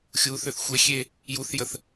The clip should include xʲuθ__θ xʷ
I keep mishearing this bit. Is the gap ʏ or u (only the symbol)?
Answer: ʏ